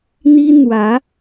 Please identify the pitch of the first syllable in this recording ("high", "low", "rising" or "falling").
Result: high